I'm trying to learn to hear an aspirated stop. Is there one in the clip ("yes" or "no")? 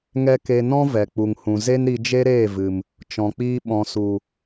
no